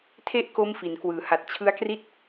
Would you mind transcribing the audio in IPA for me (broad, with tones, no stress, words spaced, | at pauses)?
tʰe˥˩ʔ ko˥˩mfi˩˦nkwɯː˩˦ha˨˩t̚ t͡ɕʰɯ˦˥a̯kri˥˩t̚